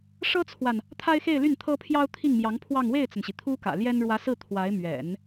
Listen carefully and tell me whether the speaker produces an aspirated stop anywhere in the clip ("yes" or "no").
yes